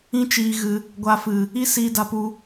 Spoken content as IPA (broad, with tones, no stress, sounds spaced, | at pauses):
ĩ˦ t͡ʃ iː˧ ɣ ɨ˧ | ɡʷ a˧ f ɨ˨ | i˦ s iː˧ d a˧ p u˧